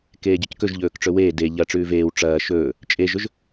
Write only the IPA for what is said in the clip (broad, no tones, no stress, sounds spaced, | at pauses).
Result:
k eː ɟ ɵ c k ɵ ʒ ʎ ɵː k ʈ͡ʂ ɵ w eː d e ʎ ɐ ʈ͡ʂ ʉː v eː w ʈ͡ʂ ɐː ʃ ɵː | t͡ʃʼ e ʒ ɵ ʒ